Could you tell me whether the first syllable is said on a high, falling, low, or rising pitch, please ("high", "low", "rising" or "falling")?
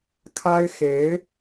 high